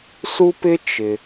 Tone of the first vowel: high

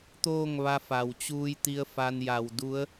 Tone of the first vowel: falling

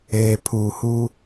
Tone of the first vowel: low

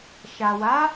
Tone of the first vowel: low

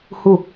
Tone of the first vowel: falling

